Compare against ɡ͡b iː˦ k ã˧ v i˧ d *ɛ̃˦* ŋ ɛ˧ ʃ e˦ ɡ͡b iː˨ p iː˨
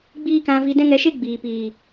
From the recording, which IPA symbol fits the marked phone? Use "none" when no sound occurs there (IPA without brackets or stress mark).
ɛ̃˦